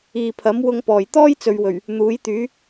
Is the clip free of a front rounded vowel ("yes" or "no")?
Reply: no